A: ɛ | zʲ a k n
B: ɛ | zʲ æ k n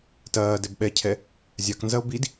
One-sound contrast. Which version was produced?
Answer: A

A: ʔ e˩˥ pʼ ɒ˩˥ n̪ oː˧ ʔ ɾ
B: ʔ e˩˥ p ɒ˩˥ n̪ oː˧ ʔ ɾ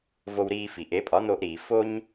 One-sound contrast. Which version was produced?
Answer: A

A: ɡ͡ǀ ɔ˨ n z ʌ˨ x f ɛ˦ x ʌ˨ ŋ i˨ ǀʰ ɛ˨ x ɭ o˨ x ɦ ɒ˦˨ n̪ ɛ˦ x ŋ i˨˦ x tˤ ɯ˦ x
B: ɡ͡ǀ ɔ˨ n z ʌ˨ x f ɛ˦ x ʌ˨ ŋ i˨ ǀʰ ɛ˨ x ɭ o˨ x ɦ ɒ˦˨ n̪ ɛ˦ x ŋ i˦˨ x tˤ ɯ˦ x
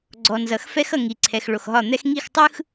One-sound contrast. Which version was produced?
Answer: B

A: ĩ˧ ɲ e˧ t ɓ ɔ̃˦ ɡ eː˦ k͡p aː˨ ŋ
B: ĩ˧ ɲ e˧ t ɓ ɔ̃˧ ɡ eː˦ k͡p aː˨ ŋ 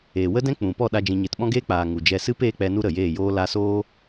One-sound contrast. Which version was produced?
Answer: A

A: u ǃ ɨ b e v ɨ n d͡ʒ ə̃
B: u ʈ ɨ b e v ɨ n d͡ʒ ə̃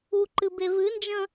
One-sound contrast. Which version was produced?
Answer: A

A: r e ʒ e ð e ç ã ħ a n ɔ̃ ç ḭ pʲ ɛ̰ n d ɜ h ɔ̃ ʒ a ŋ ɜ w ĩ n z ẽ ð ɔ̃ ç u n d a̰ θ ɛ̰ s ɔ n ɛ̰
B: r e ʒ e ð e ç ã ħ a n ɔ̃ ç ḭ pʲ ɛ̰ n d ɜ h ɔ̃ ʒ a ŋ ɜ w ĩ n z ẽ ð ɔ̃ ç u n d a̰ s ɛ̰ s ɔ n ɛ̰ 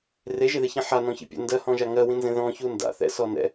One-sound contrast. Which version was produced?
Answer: A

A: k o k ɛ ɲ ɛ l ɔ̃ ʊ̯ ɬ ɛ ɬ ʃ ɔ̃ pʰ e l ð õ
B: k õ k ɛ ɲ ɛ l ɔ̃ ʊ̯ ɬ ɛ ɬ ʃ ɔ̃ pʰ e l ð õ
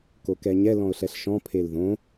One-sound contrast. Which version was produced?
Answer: A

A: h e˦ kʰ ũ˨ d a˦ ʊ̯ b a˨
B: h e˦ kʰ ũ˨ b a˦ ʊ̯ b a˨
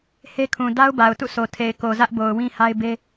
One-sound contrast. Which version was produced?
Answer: A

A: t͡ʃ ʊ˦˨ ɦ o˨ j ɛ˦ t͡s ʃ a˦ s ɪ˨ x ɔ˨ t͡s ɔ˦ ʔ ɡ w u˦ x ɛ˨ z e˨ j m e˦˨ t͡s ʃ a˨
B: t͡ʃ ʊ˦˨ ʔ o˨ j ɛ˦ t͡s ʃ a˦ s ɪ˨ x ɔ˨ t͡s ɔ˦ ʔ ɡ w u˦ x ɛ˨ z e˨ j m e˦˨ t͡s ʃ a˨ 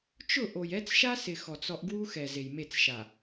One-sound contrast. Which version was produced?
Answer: B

